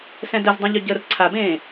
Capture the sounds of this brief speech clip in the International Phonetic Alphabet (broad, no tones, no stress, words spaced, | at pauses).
sɛ̃dəzdˤõʎø ɟər ǀʰabẽː